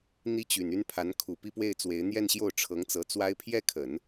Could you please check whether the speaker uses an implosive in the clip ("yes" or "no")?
no